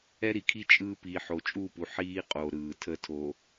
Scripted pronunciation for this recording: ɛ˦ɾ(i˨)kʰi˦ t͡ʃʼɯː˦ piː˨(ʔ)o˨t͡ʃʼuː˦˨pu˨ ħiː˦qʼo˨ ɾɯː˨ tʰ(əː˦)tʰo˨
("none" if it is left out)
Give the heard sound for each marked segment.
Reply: i˨, ħ, əː˦

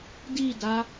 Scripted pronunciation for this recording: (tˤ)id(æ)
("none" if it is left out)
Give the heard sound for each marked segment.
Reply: d, a

